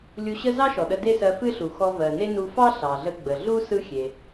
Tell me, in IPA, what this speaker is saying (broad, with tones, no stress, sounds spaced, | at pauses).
lʲ u˧ ɕ ə˥ z ɑ˥ ʃ ɔ˩ ɗ ə˧ d e˥ s ɜ˧ f ɨ˥ ɬ u˩ x ɔ˧ v ɜ˩ n e˥ n u˧ f ɑ˥ ɬ ɑ˩ ɮ ə˧ ɡ͡b ə˩ ɮ u˥ s ɯ˥ xʲ e˩